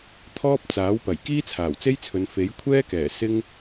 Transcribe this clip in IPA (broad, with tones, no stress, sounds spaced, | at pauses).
t̪ʰ ɔː˥ p̚ t͡s aː˨˥ w p ɐ˨˩ j k iː˥ t͡sʰ aː˨˩ w t͡s e˥ j t͡sʰ ɵ˨˧ n f e˨˥ j kʷʰ ɛː˥ k ɛː˨˩ s ɪ˥ ŋ